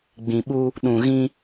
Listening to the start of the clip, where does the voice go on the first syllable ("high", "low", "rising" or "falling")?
low